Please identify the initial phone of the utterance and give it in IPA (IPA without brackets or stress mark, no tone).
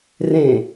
r